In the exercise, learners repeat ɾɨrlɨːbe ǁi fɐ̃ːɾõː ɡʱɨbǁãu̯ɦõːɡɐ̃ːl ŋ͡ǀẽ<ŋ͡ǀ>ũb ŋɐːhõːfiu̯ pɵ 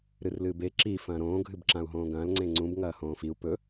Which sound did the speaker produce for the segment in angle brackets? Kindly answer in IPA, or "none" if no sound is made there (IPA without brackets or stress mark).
ŋ͡ǀ